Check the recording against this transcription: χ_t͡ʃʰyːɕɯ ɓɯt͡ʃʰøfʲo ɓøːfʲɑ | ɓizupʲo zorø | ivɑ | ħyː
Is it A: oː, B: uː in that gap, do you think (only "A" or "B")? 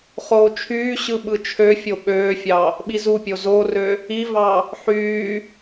A